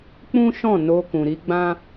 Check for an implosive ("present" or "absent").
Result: absent